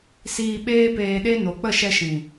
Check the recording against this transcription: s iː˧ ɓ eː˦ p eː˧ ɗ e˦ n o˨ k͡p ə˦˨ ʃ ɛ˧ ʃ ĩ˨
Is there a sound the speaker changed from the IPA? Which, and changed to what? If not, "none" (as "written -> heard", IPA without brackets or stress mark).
none